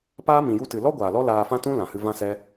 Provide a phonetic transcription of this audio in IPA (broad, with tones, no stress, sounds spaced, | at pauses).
p aː˦ m ĩ˨ j u˧ t ɨ˨ l ɔ˦ ɡʷ aː˨ l ɔ˦ l aː˧ f ã˦ t ũ˦ l ã˨ h ɨ˧ v ã˦ s ɛ˦